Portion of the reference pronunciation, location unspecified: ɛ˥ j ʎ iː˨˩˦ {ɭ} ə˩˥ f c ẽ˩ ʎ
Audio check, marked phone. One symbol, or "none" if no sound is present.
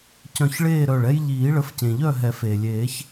ɭ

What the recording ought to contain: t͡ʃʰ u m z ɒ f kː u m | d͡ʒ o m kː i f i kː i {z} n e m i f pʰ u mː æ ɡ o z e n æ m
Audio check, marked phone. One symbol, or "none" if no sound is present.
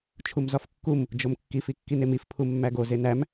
none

